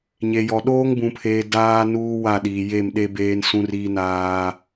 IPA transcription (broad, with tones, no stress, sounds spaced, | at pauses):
ɲ e˨ j ɔ˨ ɗ oː˦ ŋ b ũ˨ pʰ eː˨ d aː˦ n uː˦ w a˦˨ ɗ iː˨ j e˦˨ m ɗ e˦ b eː˦ n s ũ˦ r iː˦ n aː˦